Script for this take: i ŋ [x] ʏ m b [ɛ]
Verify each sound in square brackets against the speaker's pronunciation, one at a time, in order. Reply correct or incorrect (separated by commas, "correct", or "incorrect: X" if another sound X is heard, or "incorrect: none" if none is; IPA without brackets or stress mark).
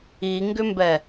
incorrect: ɡ, correct